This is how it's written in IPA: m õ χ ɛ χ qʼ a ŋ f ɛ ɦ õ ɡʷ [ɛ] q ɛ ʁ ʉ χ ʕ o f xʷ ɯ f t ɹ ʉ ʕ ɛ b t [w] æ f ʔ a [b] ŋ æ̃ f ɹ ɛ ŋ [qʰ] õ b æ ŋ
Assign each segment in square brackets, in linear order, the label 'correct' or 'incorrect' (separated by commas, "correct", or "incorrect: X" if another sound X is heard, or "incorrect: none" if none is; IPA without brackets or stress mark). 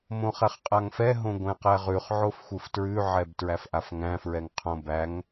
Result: incorrect: ɛ̃, incorrect: ɹ, incorrect: f, correct